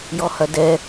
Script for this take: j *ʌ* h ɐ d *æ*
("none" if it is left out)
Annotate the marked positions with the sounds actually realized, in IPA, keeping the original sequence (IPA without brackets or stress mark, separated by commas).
ɔ, ɛ